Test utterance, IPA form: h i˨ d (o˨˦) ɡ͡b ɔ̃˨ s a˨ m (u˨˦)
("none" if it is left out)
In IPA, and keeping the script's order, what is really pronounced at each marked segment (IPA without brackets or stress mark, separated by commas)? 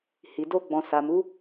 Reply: o˧, u˨˦